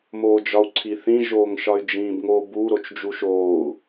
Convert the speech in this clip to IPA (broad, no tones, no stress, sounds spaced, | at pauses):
m oː d͡ʒ ɒ u̯ ǀʰ i θ ĩ ʒ oː ŋ ʃ ɒ y̯ d͡ʒ ĩː b ŋ o b u ɾ o t͡ʃ d͡ʒ u ʃ oː u̯